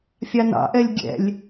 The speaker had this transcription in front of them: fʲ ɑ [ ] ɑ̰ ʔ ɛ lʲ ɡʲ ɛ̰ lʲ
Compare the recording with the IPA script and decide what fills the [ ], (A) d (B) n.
B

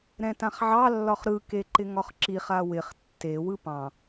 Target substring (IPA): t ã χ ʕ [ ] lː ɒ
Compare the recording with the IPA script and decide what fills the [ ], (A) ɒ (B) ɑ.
B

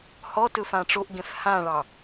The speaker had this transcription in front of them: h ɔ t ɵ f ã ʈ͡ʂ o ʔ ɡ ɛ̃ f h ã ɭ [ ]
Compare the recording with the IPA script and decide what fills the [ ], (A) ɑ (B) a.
A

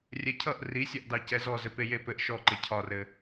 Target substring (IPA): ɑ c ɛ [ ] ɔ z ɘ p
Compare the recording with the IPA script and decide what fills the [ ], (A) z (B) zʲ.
A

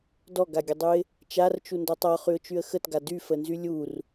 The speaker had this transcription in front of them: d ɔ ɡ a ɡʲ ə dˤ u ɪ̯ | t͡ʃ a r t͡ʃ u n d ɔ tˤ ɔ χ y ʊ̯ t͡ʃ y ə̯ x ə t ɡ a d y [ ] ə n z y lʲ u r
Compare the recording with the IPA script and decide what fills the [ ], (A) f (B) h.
A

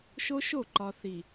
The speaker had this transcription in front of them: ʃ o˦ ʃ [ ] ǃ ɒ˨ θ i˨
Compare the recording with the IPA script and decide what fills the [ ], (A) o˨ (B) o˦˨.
B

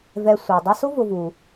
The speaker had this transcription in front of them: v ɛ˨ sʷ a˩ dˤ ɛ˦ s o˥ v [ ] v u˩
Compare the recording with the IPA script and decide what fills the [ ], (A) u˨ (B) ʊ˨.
B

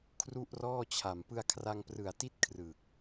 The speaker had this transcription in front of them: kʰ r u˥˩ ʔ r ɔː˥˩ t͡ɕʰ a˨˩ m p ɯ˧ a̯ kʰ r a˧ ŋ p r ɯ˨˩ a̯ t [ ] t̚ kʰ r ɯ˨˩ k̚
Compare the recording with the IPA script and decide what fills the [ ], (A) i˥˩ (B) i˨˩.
A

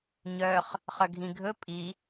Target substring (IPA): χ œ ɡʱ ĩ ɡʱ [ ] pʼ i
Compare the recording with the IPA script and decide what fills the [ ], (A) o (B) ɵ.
B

